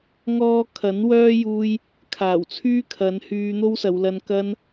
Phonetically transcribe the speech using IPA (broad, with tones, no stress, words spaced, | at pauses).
ŋɔː˥ kʰɐ˨˥nwœː˥juː˧j | kʰaː˨˩wt͡sʰyː˥kʰɐ˨˧nhyː˧ n̪o˥wsɐ˨˧wlɐ˧n kɐ˧n